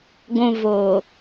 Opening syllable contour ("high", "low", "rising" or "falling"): low